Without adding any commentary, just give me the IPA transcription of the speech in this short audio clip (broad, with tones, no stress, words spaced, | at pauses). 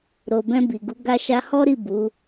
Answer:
ɾo˨bɛ̃˧bi˨ɡu˨˦ ɡa˧ʃa˧hɔ˦ɾi˦˨ bu˨˦